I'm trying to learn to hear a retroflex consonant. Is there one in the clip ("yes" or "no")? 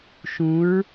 no